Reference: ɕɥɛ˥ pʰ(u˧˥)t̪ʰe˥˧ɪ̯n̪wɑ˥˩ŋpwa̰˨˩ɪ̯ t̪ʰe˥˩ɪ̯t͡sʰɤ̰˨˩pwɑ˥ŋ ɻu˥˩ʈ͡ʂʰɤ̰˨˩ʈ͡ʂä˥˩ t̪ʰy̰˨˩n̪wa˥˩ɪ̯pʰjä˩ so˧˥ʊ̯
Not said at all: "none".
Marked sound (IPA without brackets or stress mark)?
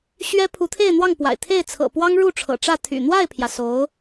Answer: u˧˥